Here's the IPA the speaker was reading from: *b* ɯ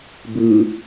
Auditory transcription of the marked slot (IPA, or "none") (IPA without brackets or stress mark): b